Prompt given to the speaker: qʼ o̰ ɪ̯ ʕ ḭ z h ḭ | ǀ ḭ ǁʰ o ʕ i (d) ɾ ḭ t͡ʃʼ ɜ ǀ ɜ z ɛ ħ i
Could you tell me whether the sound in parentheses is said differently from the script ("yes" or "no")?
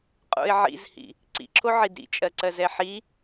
no